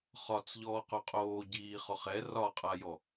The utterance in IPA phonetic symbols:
χ ɒ t͡s ʎ ɔː q o qʼ oː ɟ iː χ ɔ χ ɛ r ɒ qʼ a j ɔ

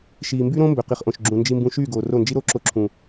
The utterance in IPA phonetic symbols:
ʃ iː˨ m b y˦ ɾ õ˦ m b ø˨ q i˨ χ ʔ õ˨ ʃ ɡ͡ǁ ũ˨ n d͡ʒ i˨ m b ũ˨ ʃ yː˦˨ ɡ oː˨ r o˦˨ n d͡ʒ i˦ ɾ o˦˨ ǁ o˦ ǁʰ ũ˨

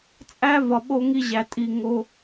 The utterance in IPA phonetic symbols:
t͡sʼ æ˦ v ɒ˨ ɓ o˧ ŋ i˧ ʑ æ˧ tʼ i˧ ŋ o˦

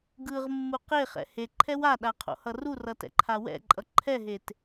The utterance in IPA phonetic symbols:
ɡ ɯ ʁ mː u q e χ ɛ̰ h e ǃʰ ɛ w a ɗ a qʰ o̰ h ʌ r u r ʌ t ɛ̰ ǃʰ a w ɛ̰ ǃʼ ʌ ǃʰ ɛ ɦ e t

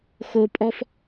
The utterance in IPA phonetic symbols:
x o˦ pʼ ɔ˦ f

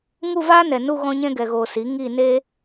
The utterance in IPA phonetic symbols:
ŋ u˦˨ v aː˦ n ɛ˨ n u˦˨ ɣ ɔ̃˧ ɲ ɛ̃˧ ɡ ɛ˨ ɣ oː˨ s i˨˦ ŋ i˦˨ n e˦

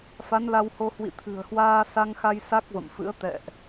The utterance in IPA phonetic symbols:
f a˨˦ n l a˧ w h o˧ h w ḭ˧˨ t̪ʰ ɨ̤˨˩ ə̯ h w aː˧ s a˧ ŋ x a˧ j s a˦˥ k̚ v ə̰˧˨ m f ɨ̰˧˥ ə̯ t̪ ɛ̰˧˨ ʔ

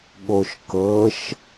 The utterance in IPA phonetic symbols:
ɠ o ʃ k ɤ ʃ

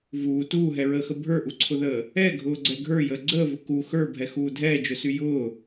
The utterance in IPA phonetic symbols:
v uː t uː ɦ ɛ ɹ əː x ə bʱ ə˞ ʔ u ǀʰ ʊ ð əː | ɛ ɡʱ ʊː ɡ͡ǀ ɛ ɡʱ ə˞ j əː ɡ͡ǀ əː v ʊ k u x ə˞ bʱ ɛ x uː dʱ ɛː d͡ʒ ʊ s y j ʊː

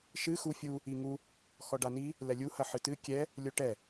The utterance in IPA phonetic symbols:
ʃ ɨ x u fʲ u | i ŋ u | x ɔ ɖ a n i | l ɛ lʲ u h ɐ ħ ɨ t ɨ kʲ ɛ | lʲ o ʈ ɛ

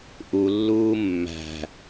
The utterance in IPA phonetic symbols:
ʔ u lː uː mː æ̤

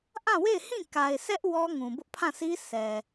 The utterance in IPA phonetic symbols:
ʔ ã˦˨ w e˦˨ ɪ̯ h ĩ˦˨ k a˨ ɪ̯ sʰ ɛ˦ ʔ w ɔ˦ ŋ ũ˨ b ʊ˦ ʔ pʰ ã˦˨ sʰ i˦ sʰ ɛ˨

